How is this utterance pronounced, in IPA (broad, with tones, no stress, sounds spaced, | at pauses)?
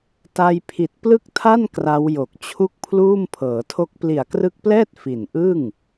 t a˧ j pʰ i˨˩ t̚ p l ɯ˥˩ k̚ tʰ a˥˩ n k r a˦˥ w j o˨˩ k̚ t͡ɕʰ u˥˩ k̚ pʰ l uː˥˩ m pʰ ɤː˩˦ tʰ o˦˥ k̚ p l i˨˩ a̯ k r ɯ˦˥ k̚ p l ɛː˥˩ t̚ f i˨˩ n ʔ ɯ˥˩ ŋ